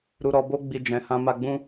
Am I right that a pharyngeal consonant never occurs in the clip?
yes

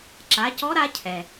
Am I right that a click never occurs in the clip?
no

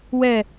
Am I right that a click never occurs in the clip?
yes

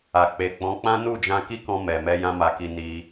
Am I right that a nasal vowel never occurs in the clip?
no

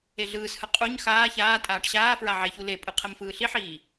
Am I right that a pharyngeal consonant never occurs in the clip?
no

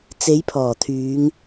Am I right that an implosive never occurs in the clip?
yes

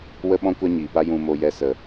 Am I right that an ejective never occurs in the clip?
yes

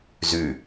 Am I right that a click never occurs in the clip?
yes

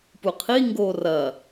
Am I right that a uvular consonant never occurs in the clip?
no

